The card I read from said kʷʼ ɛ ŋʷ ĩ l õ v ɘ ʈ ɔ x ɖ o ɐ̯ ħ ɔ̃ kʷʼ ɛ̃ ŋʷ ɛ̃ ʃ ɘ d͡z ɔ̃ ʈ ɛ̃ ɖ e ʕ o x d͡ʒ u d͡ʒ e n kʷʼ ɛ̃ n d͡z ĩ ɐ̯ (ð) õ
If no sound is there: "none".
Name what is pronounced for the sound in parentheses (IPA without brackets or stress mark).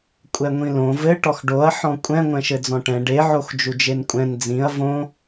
v